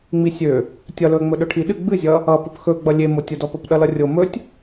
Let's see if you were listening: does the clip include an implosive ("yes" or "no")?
yes